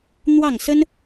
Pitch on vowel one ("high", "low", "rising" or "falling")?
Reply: falling